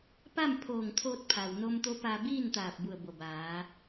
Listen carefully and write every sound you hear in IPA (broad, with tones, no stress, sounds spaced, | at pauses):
p a˥˨ m pʰ oː˧˩ ŋ t̪ʰ oː˧ t̚ pʰ a˩ w n o˧ m t̪ o˧˥ p a˧ b iː˥˨ n t̪ aː˧˩ p̚ b u˧˩ ə̯ b o˧˩ b aː˩˧